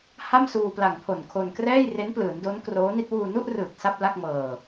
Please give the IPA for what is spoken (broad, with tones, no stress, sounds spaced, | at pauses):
h a˥˩ m s uː˧ p l a˨˩ ŋ pʰ o˨˩ n kʰ o˧ n k r ɛː˥˩ j r e˦˥ n p l ɯː˩˦ n d o˦˥ n k r oː˦˥ n i˥˩ t̚ w uː˧ n u˥˩ ʔ r ɯː˨˩ k̚ s a˥˩ p̚ l a˥˩ k̚ m ɤː˧